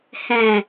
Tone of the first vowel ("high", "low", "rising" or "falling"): low